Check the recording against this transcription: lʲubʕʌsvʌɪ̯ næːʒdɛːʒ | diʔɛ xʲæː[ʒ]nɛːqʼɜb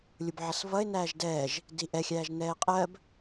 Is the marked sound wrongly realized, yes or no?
no